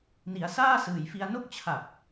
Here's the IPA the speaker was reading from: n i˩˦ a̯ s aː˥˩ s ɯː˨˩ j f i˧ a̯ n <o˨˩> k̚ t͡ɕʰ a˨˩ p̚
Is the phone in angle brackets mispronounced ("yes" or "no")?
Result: yes